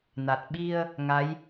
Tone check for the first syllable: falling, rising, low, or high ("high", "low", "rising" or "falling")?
low